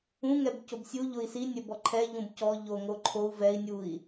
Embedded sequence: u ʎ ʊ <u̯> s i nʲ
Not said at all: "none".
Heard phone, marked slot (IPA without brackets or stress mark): i̯